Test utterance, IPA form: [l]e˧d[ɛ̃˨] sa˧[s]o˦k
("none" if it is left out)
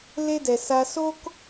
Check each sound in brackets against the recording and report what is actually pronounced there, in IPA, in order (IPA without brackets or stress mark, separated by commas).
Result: l, ɛ˨, s